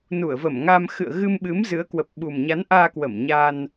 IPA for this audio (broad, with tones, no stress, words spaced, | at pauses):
nu˧˩ə̯və˧˩mŋa˧m xɨ̰˧˨ə̯ɣɨ˧mɓɨ˨˦m zɨ˨˦ə̯ kwə˨˩p̚ɓu˨˩mɲa˨˦nʔaː˧ kwə˧˩mɲa˧n